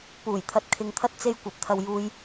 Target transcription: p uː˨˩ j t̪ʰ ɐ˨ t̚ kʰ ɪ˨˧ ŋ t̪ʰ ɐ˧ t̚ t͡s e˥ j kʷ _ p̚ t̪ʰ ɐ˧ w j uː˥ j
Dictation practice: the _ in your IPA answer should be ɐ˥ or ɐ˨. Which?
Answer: ɐ˨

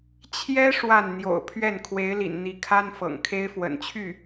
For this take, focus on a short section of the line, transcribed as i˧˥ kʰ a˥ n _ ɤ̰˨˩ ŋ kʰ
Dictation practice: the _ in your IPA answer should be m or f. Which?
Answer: f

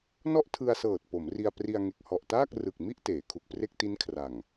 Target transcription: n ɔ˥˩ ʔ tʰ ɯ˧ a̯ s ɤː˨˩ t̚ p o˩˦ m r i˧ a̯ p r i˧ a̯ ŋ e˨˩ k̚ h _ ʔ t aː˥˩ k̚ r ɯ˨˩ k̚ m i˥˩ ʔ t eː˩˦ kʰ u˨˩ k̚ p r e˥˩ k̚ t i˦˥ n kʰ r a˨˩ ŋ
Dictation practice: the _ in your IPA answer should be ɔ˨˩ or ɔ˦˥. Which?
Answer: ɔ˨˩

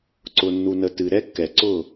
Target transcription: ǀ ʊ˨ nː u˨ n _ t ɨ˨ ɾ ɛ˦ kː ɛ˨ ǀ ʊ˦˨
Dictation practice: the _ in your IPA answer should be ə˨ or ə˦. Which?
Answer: ə˨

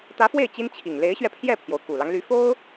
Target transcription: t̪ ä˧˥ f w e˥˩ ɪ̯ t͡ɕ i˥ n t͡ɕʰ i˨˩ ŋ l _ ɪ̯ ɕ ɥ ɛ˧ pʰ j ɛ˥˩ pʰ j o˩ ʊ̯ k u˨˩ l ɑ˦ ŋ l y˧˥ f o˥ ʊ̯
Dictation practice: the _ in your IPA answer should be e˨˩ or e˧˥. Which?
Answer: e˧˥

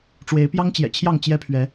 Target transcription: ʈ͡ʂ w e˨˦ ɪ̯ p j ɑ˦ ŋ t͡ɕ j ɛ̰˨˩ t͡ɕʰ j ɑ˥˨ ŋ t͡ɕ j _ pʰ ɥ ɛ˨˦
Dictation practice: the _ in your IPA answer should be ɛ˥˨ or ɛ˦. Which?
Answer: ɛ˦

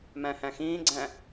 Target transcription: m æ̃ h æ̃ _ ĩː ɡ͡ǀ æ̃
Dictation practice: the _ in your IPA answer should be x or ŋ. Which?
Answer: x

